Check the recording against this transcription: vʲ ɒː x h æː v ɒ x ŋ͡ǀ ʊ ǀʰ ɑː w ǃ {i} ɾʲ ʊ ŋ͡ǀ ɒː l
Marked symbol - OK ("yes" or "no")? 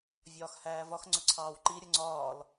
yes